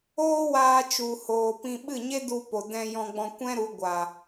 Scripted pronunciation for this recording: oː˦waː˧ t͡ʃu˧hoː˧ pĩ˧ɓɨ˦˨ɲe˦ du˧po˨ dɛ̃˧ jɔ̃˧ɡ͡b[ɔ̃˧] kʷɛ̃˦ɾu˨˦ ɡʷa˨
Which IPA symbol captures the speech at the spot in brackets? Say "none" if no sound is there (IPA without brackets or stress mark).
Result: ɔ̃˧